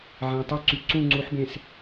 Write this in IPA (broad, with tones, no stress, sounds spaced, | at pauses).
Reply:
ʕ æ̃˨ tˤ y˦ ǀ y˨ ǀ ũ˦˨ ŋ͡ǀ u˨˦ ħ b ẽ˨ s